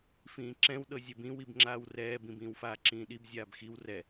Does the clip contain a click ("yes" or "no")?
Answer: yes